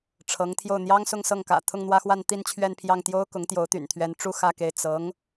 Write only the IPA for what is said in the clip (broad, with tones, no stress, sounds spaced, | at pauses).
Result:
ʈ͡ʂʰ ɤ˧˥ ŋ t̪ʰ j o˥˩ ʊ̯ n̪ j ɑ˥ ŋ s ʊ˥˧ ŋ s ɤ˥˩ ŋ k ä̰˨˩ t̪ʰ ʊ˥˧ ŋ n̪ w ä˥˧ x w a˥˧ n t̪ i˥˧ n t͡ɕʰ ɥ ɛ˥˧ n pʰ j ɑ˥˩ ŋ t̪ j o˥ ʊ̯ k ʊ˧˥ ŋ t̪ j o˧˥ ʊ̯ t̪ y̰˨˩ n t̪ʰ ɥ ɛ˧˥ n ʈ͡ʂ u˥ x ä˥˧ k e˥˩ ɪ̯ t͡s ɤ˧˥ ŋ